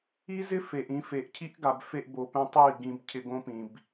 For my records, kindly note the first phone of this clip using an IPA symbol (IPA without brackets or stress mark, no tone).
i